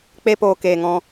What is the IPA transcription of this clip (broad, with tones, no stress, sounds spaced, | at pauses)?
k͡p e˦ p oː˧ k eː˨ ŋ ɔ̃˧